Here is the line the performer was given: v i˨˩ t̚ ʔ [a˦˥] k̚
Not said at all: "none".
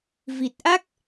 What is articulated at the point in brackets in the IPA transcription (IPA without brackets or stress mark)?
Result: a˦˥